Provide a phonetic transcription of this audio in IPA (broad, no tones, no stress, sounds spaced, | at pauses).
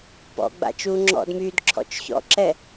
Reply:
p ɔ̰ ɡ͡b a̰ t͡ʃ uː ŋ͡ǁ ɔ̰ d m yː d ǁʰ ɔ̰ t͡ʃ ç ɔ̰ ǁ ɛ